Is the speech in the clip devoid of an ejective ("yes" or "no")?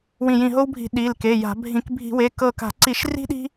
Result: yes